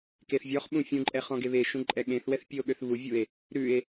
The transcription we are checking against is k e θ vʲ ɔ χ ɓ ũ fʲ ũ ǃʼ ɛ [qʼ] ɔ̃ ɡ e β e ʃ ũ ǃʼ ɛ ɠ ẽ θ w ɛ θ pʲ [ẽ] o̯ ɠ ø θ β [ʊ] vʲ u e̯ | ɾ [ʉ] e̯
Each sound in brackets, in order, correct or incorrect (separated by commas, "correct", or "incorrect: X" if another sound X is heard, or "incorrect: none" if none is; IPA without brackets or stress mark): incorrect: χ, incorrect: e, incorrect: u, correct